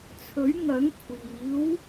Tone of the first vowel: rising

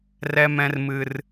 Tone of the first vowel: high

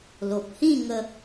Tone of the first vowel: low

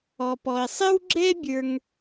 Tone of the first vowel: low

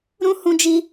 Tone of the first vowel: high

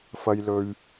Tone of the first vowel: low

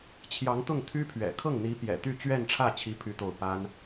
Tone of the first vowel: rising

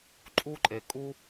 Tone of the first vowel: high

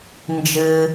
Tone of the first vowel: low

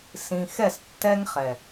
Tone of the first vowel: low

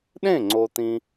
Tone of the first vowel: falling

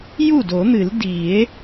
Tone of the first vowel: falling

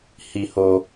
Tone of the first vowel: low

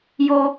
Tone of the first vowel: low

